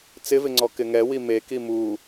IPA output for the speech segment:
t͡s ɪ v ɪ ŋ͡ǀ ɔ k ɪ ŋ ɛ w i m e k i m u

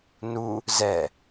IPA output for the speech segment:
n u | z ɛ

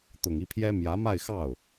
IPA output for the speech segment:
t̪ ʊ˨˩ ŋ i˥˩ pʰ j ɛ˥ m j ä˧˥ m a˥˧ ɪ̯ x ɑ˥˩ ʊ̯

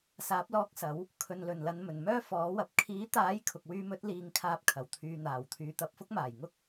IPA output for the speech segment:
s aː˨˥ p̚ l ɔː˧ k̚ s ɐ˨˥ w | kʰ ɵ˨ n l ɵ˨˩ n l ɐ˨ n m ɵ˨˩ n m œː˥ f ɔː˨˥ w ɐ˨ p̚ kʰ iː˨˥ t̪ aː˨˥ j kʰ ʊ˨ k̚ w yː˧ m ɵ˨˥ t̚ l iː˨˧ ŋ kʰ aː˧ p̚ kʰ ɐ˨˩ w t̪ʰ yː˨ n̪ aː˨˩ w t̪ʰ yː˨ t̪ ɐ˨˥ p̚ f ʊ˥ k̚ m aː˨˩ j ŋ ʊ˥ k̚

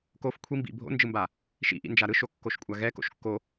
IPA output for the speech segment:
k o f kʷʰ i m b ḭ bʱ o̰ n d͡ʒ ɯ m b a | ʃ ḭ ʔ ḭ n d͡ʒ a ɾ ɯ ʃ o kː o ʃ kʷʼ a ɣ ɛ k o̰ ʃ kː o

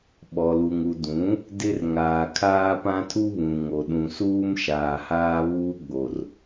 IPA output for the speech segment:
ɓ ɔ˨ l u˨ ŋ u˨ d ũ˨˦ | d ɪ˦ r ŋ aː˨ kʰ aː˦ p ã˦ tʰ u˦ β ũ˨ ŋ o˨ ɗ ũ˨ s uː˦ m ʃ aː˨ h aː˦ β uː˦ ɡ͡b o˨ r

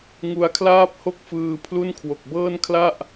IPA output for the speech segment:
ŋ u˧ a̯ kʰ l aː˥˩ p̚ h o˥˩ k̚ f ɯː˧ pʰ l u˥˩ n kʰ w o˨˩ k̚ b ɤː˥˩ n kʰ l a˥˩ ʔ

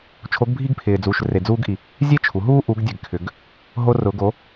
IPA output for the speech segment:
t͡ʃʰ o˧˥ ɡ bʱ i˥ ɡ pʰ ɪː˧ d͡z u˧ ʃ r e˧ d͡z uː˥ ɡ ʔ i˧ | zʲ e˥ t͡ʃʰ u˩˧ ɦ uː˥ ʔ u˧˥ ɡ dʲ ɛ˧ ɡ kʰ ʏ˧˥ ɡ | ɦ o˥ r ʊ˧˥ ɡ o˧˥

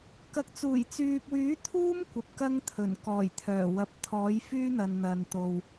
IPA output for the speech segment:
k ɐ˨ k̚ t͡s uː˨˩ j t͡s yː˨ p̚ w yː˨˥ t̪ʰ uː˥ m kʷ ɐ˨ p̚ k ɐ˧ ŋ t̪ʰ ɵ˨˩ n k ɔː˨˩ j t̪ʰ œː˨˩ w ɐ˨ p̚ t̪ʰ ɔː˨˥ j f yː˥ n̪ ɐ˨ n n̪ ɐ˨ n t̪ o˨ w

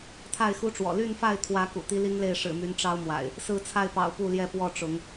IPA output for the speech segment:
t̪ʰ a˥˨ ɪ̯ x u˦ ʈ͡ʂ w ɔ̰˨˩ l y˥˨ n f a˥˨ ɪ̯ t̪ʰ w ä˨˦ k ṵ˨˩ t̪ i˦ l i˦ ŋ l e˥˨ ɪ̯ ʂ ɻ̩˨˩ m y˨˦ n ʈ͡ʂ ɑ˦ ʊ̯ m w a̰˨˩ ɪ̯ | s ɹ̩˥˨ t͡sʰ a˥˨ ɪ̯ p ɑ̰˨˩ ʊ̯ p u˥˨ l j ɛ˥˨ p w ɔ˥˨ ʈ͡ʂ ʊ˨˦ ŋ

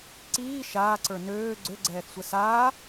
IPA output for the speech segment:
ǀ iː ʃ aː ǀ ə˞ n øː ɡ͡ǀ ø ɡ͡ǀ ɛː θ sʷ ɛ s aː

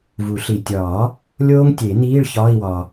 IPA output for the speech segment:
v u˨˩˦ ɬ i˨ tʲ ɒː˨˩˦ | lʲ oː˦˥ ŋ tʲ e˨˩˦ n iː˧˥˧ ɭ ç ɒː˧˥˧ i̯ w ɒ˨

